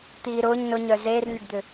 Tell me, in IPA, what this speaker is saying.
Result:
t̪ iː ɾ ʊː ɲ n ʊ ɲ œ z eː r n ʏ ɖ d̪ ʏ

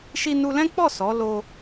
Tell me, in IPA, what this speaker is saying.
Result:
ʃ i˧ n u˧ l ɛ̃˦ k͡p ɔ˦˨ s ɔ˨˦ l o˧

